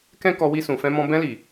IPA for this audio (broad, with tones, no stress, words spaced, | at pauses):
kɛ̃˦ kɔ˧wi˧sũ˨fɛ̃˧ mɔ̃˧ bɛ̃˧li˨